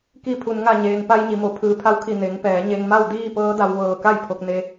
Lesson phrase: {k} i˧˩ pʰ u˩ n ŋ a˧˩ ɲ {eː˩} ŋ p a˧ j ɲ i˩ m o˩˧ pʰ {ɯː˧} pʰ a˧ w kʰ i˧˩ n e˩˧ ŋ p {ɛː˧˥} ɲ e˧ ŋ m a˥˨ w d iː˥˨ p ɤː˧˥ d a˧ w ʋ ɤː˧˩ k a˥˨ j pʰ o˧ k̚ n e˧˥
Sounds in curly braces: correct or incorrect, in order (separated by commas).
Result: correct, correct, incorrect, incorrect